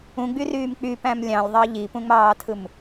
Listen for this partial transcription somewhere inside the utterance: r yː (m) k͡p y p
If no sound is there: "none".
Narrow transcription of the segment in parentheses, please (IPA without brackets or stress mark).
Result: m